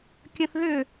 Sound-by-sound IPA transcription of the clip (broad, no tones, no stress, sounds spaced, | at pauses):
kʲ ə̃ θ ð ʏ